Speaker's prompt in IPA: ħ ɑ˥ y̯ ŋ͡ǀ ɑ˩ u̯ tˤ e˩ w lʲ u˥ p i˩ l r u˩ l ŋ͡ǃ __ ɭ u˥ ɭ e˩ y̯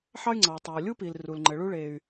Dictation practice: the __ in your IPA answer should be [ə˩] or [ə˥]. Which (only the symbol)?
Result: ə˩